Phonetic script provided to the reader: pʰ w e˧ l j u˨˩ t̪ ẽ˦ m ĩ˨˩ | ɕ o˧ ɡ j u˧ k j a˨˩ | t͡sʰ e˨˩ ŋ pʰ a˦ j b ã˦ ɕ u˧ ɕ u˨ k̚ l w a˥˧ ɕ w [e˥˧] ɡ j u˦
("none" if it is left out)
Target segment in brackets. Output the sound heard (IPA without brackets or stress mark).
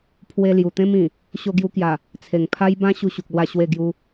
e˥˧